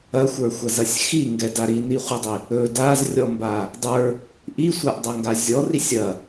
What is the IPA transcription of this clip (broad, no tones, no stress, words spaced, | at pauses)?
ɐxʷə˞xʷɐzɐsʲ xiŋɡɛda ɾiniχʷidˤi | ɵ dazrʲɔmba | dˤə˞ | ʔisʷaʔdˤɐŋɡa zʲɔrisʲ ɐ